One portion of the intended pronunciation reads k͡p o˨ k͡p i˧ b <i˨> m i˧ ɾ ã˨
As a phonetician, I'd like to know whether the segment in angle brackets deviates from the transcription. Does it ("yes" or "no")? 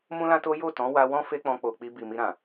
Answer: no